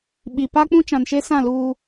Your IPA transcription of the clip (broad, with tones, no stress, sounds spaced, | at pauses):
ɓ i˨ p a˦ k͡p ũ˦ t͡ʃ ã˨ n ʃ e˦ s ã˦˨ l uː˦